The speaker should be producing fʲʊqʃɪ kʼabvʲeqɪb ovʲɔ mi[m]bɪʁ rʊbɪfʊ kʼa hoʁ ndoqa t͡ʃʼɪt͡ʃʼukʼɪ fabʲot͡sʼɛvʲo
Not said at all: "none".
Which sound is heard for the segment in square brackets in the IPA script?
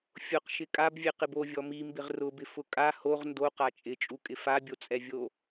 m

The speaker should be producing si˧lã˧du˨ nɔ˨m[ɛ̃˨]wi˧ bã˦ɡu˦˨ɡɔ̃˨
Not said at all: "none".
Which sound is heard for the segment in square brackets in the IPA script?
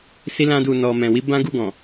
ɛ̃˨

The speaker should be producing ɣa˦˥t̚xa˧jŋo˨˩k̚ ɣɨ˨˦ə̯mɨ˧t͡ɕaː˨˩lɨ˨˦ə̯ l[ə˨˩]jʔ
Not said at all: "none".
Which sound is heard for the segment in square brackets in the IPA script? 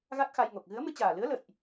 ə̰˧˨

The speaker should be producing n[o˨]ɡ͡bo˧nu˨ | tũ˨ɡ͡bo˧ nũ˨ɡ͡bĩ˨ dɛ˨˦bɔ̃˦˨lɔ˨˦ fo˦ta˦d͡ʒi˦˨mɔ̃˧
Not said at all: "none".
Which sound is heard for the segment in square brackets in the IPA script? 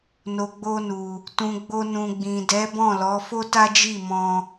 o˨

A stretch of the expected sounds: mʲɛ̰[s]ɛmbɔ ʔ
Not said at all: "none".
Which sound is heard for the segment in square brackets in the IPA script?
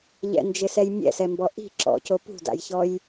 s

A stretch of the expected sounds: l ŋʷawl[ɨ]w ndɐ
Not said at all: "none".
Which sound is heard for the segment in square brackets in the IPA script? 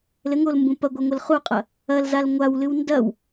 ɨ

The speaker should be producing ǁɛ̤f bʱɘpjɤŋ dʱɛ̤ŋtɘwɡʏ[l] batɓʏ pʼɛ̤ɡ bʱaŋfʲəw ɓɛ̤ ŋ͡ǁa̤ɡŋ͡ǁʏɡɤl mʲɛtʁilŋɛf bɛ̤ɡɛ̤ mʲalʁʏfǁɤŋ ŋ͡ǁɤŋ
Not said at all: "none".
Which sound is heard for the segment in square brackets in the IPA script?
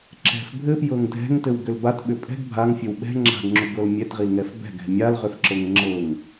l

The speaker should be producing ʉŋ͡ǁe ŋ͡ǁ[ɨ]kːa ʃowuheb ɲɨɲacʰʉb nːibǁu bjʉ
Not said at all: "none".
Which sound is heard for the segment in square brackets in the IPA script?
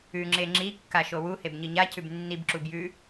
i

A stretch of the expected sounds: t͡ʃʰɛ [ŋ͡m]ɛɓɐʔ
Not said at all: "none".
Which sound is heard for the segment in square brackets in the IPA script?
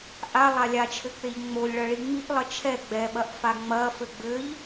ɡ͡b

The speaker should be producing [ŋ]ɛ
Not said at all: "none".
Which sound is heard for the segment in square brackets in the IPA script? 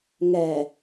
ŋ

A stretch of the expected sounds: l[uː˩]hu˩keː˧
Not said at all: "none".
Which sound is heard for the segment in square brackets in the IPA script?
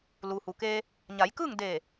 uː˩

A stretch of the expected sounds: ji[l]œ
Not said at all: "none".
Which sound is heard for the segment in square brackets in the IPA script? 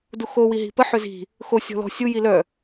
l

